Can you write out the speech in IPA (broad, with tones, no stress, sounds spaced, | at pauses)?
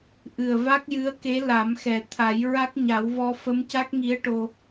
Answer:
ʔ ɨ˨˩ ə̯ v a˦˥ k̚ j ɨ˧˥ ə̯ k e˧˥ l a˨˩˦ m x ɛ˨˩ t̪ʰ a˨˩˦ j ɹ a˦˥ k̚ ɲ a˨˩˦ w v ɔ˧ f ə˧˥ m c a˦˥ k̚ ŋ i˧˥ ə̯ ʈ o˧